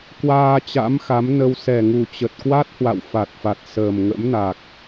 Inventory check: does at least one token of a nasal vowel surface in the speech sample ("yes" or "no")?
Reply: no